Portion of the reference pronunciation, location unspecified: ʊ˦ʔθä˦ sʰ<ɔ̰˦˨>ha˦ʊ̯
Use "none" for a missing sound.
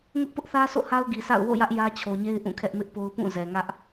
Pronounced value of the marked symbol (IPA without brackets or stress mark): o̰˦˨